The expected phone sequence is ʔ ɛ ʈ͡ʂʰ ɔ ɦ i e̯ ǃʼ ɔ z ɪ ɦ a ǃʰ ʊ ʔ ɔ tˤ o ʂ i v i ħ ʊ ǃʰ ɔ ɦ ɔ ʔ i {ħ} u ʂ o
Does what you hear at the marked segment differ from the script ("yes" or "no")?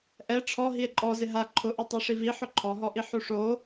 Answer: no